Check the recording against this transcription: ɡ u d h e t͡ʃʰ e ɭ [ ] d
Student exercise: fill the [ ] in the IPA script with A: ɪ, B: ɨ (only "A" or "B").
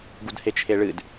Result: B